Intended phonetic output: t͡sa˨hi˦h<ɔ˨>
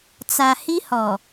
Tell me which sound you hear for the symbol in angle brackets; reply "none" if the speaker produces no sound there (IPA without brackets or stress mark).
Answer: ɔ˨